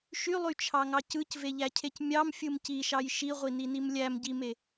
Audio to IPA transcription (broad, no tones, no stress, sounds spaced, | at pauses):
ʃ y lˠ y t͡ʃʰ ɑ ŋ ɑ c ɯ c v e ʎ æ cʰ e c mʲ ɑ m fʲ ɯ m c i ʃ ɑ j ʃ i ʁʷ i n i n i m lʲ æ m ɟ i m e